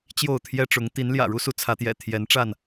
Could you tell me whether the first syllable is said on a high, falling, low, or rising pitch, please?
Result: falling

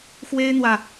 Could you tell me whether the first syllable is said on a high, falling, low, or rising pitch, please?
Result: high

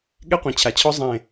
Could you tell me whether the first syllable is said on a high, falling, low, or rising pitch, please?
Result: high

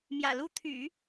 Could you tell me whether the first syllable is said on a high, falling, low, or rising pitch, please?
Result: low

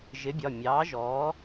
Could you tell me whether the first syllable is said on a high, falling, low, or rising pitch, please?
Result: rising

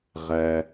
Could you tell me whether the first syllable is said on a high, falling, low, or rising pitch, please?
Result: low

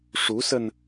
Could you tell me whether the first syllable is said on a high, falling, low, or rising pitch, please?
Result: rising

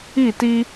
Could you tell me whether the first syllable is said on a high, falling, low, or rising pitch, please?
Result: falling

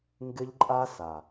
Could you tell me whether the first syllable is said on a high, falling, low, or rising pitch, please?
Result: high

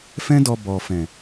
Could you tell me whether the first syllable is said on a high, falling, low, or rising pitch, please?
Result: high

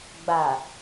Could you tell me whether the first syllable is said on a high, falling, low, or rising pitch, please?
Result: low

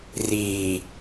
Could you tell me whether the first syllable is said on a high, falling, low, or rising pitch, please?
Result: low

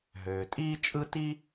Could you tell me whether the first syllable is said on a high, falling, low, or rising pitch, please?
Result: low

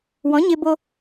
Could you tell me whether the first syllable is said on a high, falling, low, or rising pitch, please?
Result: rising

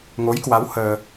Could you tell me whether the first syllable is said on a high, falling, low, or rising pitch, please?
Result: rising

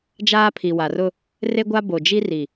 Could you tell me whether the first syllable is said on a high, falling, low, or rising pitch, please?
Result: high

